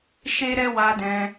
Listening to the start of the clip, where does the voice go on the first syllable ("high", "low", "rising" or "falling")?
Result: high